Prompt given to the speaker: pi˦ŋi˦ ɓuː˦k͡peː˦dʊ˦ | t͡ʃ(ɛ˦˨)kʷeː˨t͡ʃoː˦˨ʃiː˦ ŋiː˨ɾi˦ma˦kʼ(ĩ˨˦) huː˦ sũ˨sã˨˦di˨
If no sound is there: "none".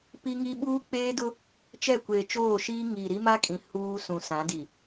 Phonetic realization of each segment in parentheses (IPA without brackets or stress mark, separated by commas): ɛ˦˨, ĩ˨